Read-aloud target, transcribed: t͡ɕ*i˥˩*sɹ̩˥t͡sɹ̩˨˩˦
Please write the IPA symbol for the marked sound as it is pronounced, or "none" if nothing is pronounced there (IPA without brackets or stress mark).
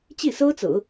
i˥˩